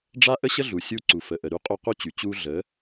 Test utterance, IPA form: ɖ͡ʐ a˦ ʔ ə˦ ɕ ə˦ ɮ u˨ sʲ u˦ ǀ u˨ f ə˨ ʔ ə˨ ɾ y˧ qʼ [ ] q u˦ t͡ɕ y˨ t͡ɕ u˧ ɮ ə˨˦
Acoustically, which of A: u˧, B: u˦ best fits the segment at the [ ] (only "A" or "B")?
A